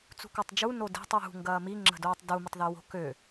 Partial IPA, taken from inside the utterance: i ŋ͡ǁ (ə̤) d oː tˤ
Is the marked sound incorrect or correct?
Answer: correct